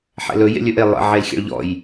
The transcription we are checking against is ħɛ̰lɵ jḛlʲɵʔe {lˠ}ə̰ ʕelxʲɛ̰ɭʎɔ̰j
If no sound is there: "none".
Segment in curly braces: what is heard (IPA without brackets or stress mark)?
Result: lˠ